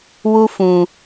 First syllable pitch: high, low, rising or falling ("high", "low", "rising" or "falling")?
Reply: high